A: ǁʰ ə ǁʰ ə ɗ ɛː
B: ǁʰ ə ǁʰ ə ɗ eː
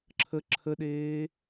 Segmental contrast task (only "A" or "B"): B